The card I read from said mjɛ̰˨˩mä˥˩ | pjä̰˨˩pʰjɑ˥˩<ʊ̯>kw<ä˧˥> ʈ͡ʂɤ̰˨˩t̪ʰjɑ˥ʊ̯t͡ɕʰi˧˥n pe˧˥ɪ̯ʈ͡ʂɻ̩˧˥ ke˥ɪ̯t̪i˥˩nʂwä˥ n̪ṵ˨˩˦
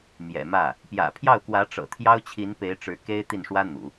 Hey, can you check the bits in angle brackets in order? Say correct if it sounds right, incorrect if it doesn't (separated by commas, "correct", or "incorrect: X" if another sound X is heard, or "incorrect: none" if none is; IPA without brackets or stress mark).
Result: correct, correct